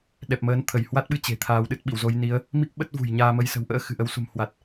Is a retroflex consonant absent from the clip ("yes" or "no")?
yes